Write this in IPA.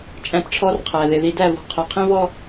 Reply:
t͡ʃʼ æ̃˦˨ p ʈ͡ʂʰ ɔ˦ r qʰ æ˨ ð ɪ˨ ð i˨ d æ˦˨ v ɔ̤˨ qʰ ʊ˨ qʰ ĩ˦ v ɔ˦

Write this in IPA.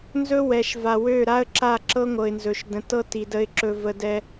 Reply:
n z ɵ˦ w ɛ˨ ʃ v a˨ w ø˦˨ ɾ a˦ ə̯ ǁ a˦˨ ǁ ɤ˦ ŋʷ ɤ˨ ɪ̯ n z ɵ˨ ʃ d ə̃˨ t ɤ˦ t i˨ d ə˨ ɪ̯ ǁ ɵ˨ v ə˨ d ɛ˦

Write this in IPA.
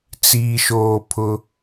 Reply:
t͡s iː˨ ʃ oː˨ pʰ ʊ˦

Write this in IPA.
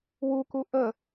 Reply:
w u k u ʔ ə

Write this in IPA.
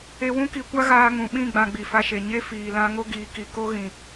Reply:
e˦ w ũ˦ k i˧ kʷ a˦ ɣ aː˧ ŋ ũ˨ ɓ ĩ˦˨ ɡ͡b ã˧ ɡ͡b i˨ f a˧ ʃ e˨ ɲ e˦ f iː˨ l ã˧ ŋ o˦ ɡ iː˨ k i˨ k o˦ ɣ ĩ˨

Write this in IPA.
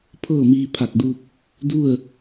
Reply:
pʰ ɤː˥˨ m iː˧ pʰ a˧˩ k̚ d u˧ p̚ | d u˥˨ ə̯

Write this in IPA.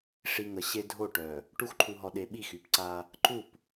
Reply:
ʂ i˨ ŋ ə˨ ɕ e˦ dʱ o˦˨ ʈ œ˨ | ʈ u˦ x ǃʰ u˨ ɦ ɔ˨ ɗ e˨ ɓ i˦˨ x y˨ p ǀ a˦ | ǃ u˦˨ p

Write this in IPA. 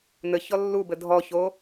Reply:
n ɘ ç ɔ lː u b ɘ dʱ ɔ ç o

